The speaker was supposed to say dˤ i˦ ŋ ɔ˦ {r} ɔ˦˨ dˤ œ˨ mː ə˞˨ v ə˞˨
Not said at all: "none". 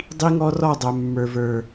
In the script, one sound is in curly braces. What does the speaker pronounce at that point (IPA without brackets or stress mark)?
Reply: r